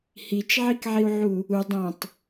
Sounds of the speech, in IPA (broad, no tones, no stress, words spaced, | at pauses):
hit͡ʃʕikʕiu̯ʕu | u dˤɐ̃tˤ